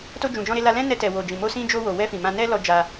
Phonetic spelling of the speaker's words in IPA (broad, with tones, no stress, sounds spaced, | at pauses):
t o˧ d͡ʒ ũ˨ d͡ʒ ɔ̃˧ ɾ e˧ l a˧ l ɛ̃˦ n ɛ˧ t ɛ˨ w o˨ d͡ʒ ĩ˨ m o˧ s ĩ˧ d͡ʒ o˧ w o˨ w ɛ˧ f ĩ˨ m ã˧ n ɛ˦ l ɔ˧ d͡ʒ a˧